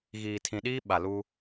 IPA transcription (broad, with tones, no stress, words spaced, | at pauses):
ɣiː˨tʰĩ˨ɗiː˦ ɓa˨lu˦